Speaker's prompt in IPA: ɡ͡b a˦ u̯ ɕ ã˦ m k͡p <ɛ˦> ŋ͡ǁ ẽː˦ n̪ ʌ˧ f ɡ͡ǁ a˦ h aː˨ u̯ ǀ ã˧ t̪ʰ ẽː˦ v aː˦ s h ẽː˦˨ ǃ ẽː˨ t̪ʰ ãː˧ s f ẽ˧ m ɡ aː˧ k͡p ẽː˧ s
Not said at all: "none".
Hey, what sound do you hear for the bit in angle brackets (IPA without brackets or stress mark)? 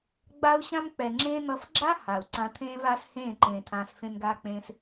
ɛ˨